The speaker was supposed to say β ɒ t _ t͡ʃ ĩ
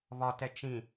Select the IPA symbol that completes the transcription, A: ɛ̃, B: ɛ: B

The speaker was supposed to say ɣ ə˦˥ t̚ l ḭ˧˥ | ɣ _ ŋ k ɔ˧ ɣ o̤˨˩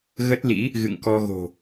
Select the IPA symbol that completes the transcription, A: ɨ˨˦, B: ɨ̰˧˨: B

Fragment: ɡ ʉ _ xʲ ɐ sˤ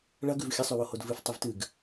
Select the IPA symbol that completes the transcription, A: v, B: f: A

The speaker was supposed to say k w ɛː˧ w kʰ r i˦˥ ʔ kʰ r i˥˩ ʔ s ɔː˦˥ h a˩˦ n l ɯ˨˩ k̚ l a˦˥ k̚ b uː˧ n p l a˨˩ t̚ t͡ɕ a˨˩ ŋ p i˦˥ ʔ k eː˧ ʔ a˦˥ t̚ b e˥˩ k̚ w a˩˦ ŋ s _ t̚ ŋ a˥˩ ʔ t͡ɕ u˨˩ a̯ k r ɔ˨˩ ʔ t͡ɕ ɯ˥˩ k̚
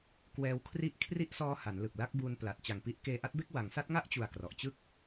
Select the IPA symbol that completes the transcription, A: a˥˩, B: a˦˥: B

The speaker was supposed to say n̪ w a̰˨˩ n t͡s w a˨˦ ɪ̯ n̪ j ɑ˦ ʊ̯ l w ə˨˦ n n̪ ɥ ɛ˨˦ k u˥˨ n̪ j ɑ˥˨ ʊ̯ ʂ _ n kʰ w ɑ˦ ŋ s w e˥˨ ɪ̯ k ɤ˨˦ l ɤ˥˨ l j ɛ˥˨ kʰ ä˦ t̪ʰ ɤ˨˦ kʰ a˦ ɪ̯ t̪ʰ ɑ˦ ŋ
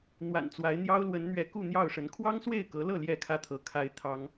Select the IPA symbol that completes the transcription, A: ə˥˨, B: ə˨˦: B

